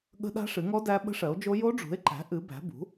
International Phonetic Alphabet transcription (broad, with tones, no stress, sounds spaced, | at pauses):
ɠ ə̤˦˥ ɗ a̤˦˥ ʂ ɨ˩˥ ŋ ɔ˦˥ d æ˦˥ ɓ ə̤˦˥ ʂ ɜ˩˥ o̯ d͡ʒ o˦˥ j o˦˥ ɖ͡ʐ ṳ˩˥ e̯ ǃ æ̤˩˥ ʔ ɨ˩˥ b æ̤˩˥ b ṳ˩˥